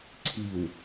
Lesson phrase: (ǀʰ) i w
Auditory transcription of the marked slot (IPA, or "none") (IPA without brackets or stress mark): ǀʰ